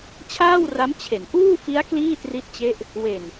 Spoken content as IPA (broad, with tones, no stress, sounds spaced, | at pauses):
t͡ɕʰ aː˥˩ w r a˦˥ m t͡ɕʰ e˩˦ n ʔ uː˥˩ f i˦˥ a̯ k l iː˥˩ t r i˦˥ t̚ t͡ɕ e˦˥ ʔ | w e˨˩ n